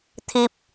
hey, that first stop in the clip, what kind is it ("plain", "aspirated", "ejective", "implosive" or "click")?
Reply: aspirated